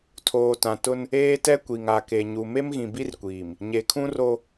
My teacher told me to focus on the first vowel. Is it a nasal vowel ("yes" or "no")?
no